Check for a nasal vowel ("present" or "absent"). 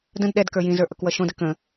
present